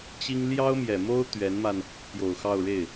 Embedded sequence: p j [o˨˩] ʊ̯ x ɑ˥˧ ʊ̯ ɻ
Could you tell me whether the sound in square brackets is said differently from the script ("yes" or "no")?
no